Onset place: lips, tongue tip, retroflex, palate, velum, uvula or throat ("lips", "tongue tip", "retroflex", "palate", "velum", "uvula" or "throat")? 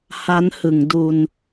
throat